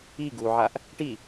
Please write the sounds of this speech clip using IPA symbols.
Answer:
i ɡ u ʕ a ʔ | ʈ i

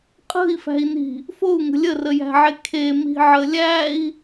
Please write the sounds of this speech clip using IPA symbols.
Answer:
qʼ ə̤ i̯ f æ̤ i̯ n i̤ | f o u̯ ŋ ə̤ lʲ ə r ə j æ̤ ʕ e kʰ e m i̤ ʕ ə lʲ æ i̯

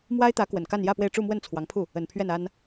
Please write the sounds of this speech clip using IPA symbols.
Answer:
m w a˥ ɪ̯ t̪ ä˧˥ k w ə˨˩ n k a˥˧ n j ä˥˧ p w e˥˧ ɪ̯ ʈ͡ʂ u˥˧ m w ə˥˩ n t͡sʰ w ɑ˧˥ ŋ pʰ u˥˩ | ə˨˩ n pʰ ɥ ɛ˥˩ n a˥ n

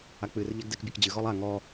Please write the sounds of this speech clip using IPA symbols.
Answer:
a k͡p ɨ r ʎ ɛ ɡ d ɛ k bʲ ɛ k d͡ʑ ɨ ɣ ɔ lˠ a ŋ ɔ

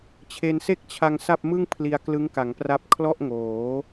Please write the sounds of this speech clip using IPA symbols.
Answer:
t͡ɕʰ e˧ n s e˥˩ k̚ t͡ɕʰ a˧ ŋ s a˥˩ p̚ m ɯ˥˩ ŋ pʰ l i˧ a̯ k l ɯ˦˥ ŋ k a˩˦ ŋ p r a˦˥ p̚ kʰ l ɔ˥˩ ʔ ŋ oː˩˦

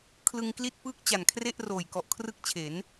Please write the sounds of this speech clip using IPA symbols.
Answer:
kʰ l ɯ˧ ŋ k l i˥˩ t̚ p ɯː˥˩ k̚ t͡ɕ a˨˩ n kʰ r e˥˩ ʔ r oː˨˩ j k ɔ˨˩ ʔ kʰ r ɯ˥˩ k̚ t͡ɕʰ e˩˦ n

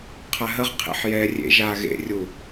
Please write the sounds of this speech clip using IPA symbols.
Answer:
qʰ a ɦ ə ʁ qʰ ḛ ħ j ɛː rʲ ḛ ʒ aː ɣ ḛ rʲ u

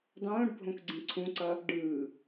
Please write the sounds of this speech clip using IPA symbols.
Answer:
dˤ õː ɖ bʱ õ k ɡ͡ǀ ĩ ǀʰ ũ ǀ ʌ | ɖ ɯː

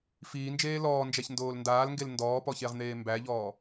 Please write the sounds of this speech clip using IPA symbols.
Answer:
f iː n d͡ʒ eː l ɔː n d͡ʒ æ ç n d oː l n d aː l ŋ ɡ e l n d ɔː p ɔ ç e ʁ n̪ eː m b æ ʎ ɔː

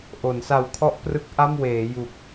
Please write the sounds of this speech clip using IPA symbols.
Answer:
ʔ o˩˦ n s a˨˩ w kʰ ɔ˥˩ ʔ p r ɯ˦˥ k̚ ʔ a˥˩ m w eː˩˦ j u˨˩ k̚

